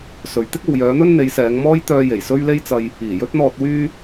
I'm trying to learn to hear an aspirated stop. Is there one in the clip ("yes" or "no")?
no